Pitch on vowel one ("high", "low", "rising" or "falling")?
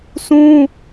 high